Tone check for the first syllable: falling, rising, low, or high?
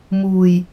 low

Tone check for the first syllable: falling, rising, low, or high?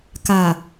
low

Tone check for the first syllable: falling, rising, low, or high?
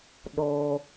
low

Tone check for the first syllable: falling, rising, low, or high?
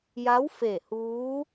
rising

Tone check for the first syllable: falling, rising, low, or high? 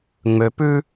low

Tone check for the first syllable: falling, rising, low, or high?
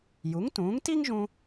rising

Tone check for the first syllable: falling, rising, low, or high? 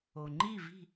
low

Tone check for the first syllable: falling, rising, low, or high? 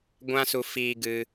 high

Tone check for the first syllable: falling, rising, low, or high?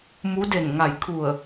rising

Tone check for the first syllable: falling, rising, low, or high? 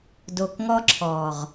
low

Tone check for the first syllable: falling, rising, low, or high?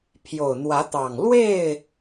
low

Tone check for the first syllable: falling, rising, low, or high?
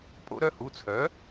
high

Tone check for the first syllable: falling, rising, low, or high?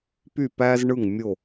falling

